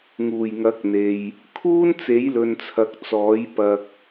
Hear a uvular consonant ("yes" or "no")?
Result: no